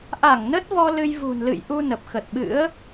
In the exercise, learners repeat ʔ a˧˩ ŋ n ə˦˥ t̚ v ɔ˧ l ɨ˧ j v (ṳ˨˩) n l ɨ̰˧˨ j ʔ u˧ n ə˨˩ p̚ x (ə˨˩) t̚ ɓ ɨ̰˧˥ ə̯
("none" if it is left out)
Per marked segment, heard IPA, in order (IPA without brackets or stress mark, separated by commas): ṳ˨˩, ə˨˩